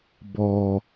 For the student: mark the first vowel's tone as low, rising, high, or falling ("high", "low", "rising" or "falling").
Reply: low